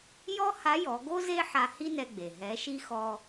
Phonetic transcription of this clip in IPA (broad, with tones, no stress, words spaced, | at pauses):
jɔ˥ha˧˥jɔ˩˧ɡo˥ ze˥ħa˧ hi˥nɛ˧ɡ͡be˩ ɦɛ˩˧ʃi˧ xɔ˧